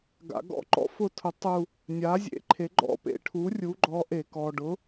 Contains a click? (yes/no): yes